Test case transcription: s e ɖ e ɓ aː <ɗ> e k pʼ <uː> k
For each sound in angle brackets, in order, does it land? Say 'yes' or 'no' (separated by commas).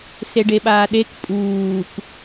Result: yes, yes